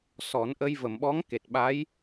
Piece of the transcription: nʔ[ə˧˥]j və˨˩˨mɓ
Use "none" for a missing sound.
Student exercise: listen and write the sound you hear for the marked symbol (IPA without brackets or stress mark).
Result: ə˧